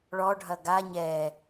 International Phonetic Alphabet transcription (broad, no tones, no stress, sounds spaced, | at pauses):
ɭ ɔ ɖʱ ɐ ɡ a ɲ ɛ